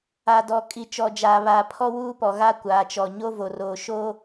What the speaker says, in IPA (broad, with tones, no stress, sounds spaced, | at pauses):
a˨ d ɔ˨ kʼ i˨ t͡ʃ ɔ˨ d͡ʒ aː˨ β aː˨ pʰ ɔ˦ w uː˦ p ɔ˨ ɣ a˦ kʷ aː˨ t͡ʃ ɔ˨ ɲ o˦ v o˨ r oː˨ ʃ oː˦